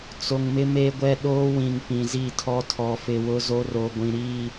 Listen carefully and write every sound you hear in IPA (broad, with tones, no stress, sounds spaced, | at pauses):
t͡s o˨ ŋ m ɪ˦ m e˦ ɡʷ ɛ˦ ɗ oː˦ w ĩ˨ ŋ p ĩ˨ z i˦˨ tʰ ɔ˦ tʰ ɔ˨ f ɪ˨ w ʊ˦ z o˦ r o˨ ɡʷ ĩ˨ ɾ i˦˨